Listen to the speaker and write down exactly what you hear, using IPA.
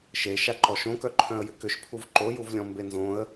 ʃe ʃaǃɔʃõkœ ǃʰœ̃ə̯jʏkʏʃ pʰuvǃojuvlʲɔ̃ mbenzõə̯

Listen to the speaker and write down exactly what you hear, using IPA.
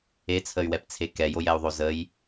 et͡sʰəy̯wɛpt͡sʰe kɛjojɛu̯ðˤo zəj

